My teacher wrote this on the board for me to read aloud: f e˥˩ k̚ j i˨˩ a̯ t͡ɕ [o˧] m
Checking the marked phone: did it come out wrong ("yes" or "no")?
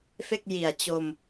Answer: no